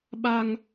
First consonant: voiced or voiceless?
voiced